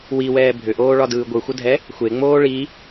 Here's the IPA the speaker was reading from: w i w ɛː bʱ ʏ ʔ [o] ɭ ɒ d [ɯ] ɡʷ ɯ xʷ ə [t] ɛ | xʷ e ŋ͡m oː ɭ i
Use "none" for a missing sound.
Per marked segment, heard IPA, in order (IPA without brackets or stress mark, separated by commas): oː, ɯː, dʱ